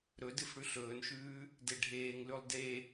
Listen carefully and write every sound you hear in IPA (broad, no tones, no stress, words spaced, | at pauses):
ɾɵdɨf ɽʉɬɵːnʃʉː | deɖʱeːŋlʉlˠ de